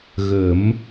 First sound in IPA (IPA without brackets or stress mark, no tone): ɣ